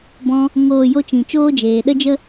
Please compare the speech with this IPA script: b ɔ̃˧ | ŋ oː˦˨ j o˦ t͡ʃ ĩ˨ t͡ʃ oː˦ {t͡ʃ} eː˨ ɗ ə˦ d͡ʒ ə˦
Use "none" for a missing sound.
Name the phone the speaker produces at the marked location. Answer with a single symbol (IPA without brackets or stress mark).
d͡ʒ